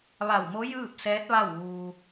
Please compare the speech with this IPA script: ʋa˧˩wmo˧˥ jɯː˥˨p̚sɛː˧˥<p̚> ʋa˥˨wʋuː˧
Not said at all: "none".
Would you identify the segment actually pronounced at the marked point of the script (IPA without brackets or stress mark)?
t̚